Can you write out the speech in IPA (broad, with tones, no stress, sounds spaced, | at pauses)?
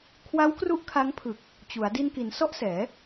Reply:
kʰ w a˦˥ w k r u˥˩ ʔ kʰ a˦˥ ŋ pʰ ɯ˨˩ k̚ | t͡ɕ u˩˦ a̯ d i˧ n k i˩˦ n s ɔ˥˩ ʔ s ɛː˩˦